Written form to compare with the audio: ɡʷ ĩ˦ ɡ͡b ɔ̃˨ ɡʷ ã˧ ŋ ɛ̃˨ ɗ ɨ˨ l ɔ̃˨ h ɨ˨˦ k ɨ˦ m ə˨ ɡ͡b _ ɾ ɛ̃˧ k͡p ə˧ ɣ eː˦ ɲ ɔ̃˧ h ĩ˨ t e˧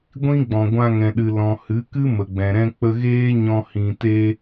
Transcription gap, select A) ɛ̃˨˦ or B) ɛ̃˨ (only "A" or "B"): B